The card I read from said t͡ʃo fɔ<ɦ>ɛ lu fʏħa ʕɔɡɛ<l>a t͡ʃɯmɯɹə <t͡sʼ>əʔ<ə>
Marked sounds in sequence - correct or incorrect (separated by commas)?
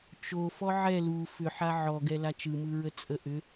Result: incorrect, correct, correct, incorrect